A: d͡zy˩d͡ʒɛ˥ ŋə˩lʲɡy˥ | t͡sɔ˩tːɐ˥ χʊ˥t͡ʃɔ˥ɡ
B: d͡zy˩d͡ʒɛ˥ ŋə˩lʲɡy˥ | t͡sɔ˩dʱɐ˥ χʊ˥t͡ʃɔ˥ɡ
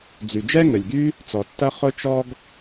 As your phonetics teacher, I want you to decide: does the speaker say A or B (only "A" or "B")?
A